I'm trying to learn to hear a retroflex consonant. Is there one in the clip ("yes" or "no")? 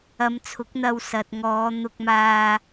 no